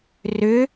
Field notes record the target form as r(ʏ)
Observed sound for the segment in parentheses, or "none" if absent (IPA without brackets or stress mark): ʏ